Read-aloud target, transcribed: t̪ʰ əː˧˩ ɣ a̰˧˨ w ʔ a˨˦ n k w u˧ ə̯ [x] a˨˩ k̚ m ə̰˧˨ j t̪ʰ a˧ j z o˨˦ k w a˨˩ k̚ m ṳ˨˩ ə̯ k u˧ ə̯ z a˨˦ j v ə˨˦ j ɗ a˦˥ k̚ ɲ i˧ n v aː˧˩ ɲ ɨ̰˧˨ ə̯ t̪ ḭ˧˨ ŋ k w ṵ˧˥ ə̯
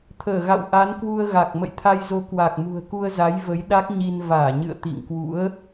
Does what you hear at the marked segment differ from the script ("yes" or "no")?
yes